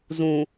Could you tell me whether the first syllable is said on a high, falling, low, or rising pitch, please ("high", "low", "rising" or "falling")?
low